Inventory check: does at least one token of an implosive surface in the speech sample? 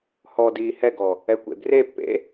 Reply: no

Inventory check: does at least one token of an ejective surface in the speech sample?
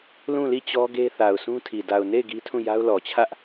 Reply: no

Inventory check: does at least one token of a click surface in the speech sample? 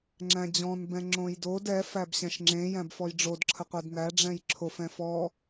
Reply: yes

